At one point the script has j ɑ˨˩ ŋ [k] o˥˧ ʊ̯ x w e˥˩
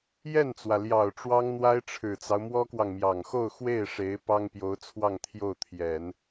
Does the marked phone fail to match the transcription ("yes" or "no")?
yes